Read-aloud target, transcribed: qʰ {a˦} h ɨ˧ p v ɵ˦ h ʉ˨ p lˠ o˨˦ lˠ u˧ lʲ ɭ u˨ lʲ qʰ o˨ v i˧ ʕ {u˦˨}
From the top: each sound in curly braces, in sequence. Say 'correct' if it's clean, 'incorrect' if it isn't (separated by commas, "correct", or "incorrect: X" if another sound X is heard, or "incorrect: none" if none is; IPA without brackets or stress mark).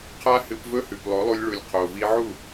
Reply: correct, correct